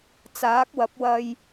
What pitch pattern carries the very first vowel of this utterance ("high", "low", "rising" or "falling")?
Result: rising